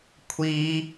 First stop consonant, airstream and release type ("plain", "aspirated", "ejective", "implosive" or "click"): aspirated